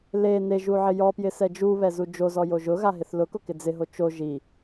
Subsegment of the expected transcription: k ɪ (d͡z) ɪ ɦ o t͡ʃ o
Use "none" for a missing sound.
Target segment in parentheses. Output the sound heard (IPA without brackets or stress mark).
d͡z